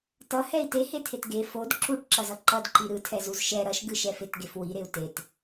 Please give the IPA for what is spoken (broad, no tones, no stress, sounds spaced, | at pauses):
t ʌ h ɛ i̯ t e h e tʰ e t ɡ e f o d ǁ u ʈ ǁ ʌ z ʌ ǃ ʌ d ǃ i ɾ ɯ tʰ ɛ z u z ʃ ɛ ɾ ʌ ʃ ɡ ɯ ʃ ɛ f e t ɡ e f w i ɾ e u̯ t e t